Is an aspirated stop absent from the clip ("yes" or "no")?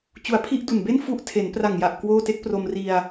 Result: no